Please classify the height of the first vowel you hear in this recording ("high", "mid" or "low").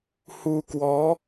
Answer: high